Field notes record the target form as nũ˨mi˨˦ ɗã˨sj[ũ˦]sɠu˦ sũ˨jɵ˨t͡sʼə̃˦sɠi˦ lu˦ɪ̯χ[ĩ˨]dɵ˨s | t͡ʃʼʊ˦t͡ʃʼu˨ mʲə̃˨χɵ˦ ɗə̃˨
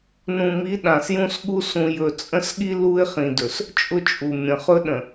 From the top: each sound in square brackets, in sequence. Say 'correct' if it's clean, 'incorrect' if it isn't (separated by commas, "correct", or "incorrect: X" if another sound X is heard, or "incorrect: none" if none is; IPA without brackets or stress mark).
correct, correct